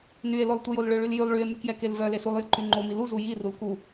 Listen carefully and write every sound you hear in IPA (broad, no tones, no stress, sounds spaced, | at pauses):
n y e̯ l o lˠ tʷ ə j o l ɭ ø ɭ y l j y lˠ ɭ y e̯ m y k j ɛ k e l v œ l e s u lˠ j ə ǃ y ŋ͡ǃ o m i l u z u j i r u l k u